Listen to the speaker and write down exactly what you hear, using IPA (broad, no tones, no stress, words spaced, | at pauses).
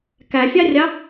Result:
kæfʲɑrʲɑ